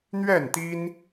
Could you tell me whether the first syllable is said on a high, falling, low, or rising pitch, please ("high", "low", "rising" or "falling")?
falling